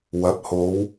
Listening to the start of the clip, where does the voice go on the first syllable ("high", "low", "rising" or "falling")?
rising